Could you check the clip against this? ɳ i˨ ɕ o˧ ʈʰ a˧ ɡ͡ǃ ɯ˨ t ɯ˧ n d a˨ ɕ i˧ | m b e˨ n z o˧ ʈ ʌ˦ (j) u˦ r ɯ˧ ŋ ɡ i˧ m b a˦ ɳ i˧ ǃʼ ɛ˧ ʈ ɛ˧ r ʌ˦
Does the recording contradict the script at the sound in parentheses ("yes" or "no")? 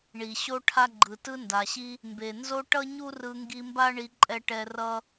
yes